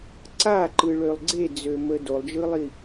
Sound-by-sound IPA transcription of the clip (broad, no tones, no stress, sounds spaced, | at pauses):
ǀ a ǃ ɯ ɭ ø lˠ ɡ͡ǀ e d͡z ø m ə d o lˠ d͡ʒ ɯ lˠ i